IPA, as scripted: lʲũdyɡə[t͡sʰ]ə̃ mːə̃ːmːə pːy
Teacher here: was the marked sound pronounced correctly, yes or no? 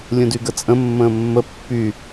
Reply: no